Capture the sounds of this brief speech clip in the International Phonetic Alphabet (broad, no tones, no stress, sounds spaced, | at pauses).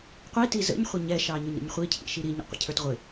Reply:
qʷ i t i z ə̰ ɲ χʷ ɪ ɲ ɛ ʃ ɑ ɲ ʊ ɲ ɾ ə̰ ɲ χʷ i cʰ ḭ ʃ i ɾ i ɲ ə̰ qʷ ə̰ cʰ ə˞ t ʁʷ ɪ